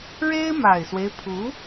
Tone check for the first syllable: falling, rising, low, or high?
high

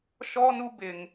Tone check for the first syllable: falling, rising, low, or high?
high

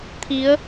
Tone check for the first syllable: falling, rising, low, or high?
rising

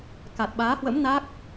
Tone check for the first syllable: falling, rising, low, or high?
low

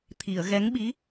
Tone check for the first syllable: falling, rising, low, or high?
low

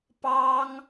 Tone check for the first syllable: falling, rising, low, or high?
high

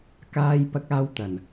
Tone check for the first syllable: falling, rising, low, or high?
high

